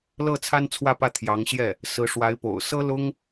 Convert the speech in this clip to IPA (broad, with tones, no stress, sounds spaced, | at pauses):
l ɤ˥˩ t͡sʰ a˥ n t͡sʰ w ä˥˧ p ä˥˩ t̪ʰ j ɑ˧˥ ŋ ɕ j ɛ˥˩ | s ɹ̩˧˥ ʂ w a˧˥ ɪ̯ p o̰˨˩ ʊ̯ s ɤ˥ l ʊ˥ ŋ